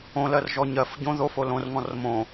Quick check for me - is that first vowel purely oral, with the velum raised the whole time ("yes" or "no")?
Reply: no